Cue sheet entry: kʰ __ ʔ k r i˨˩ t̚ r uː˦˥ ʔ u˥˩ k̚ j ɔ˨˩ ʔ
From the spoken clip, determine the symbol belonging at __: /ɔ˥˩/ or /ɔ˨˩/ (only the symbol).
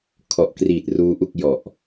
ɔ˨˩